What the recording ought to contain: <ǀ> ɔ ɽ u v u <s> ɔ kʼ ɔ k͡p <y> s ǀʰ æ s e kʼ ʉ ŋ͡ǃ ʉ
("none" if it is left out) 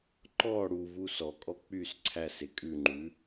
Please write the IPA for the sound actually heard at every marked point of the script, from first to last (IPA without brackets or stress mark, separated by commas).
ǃ, s, y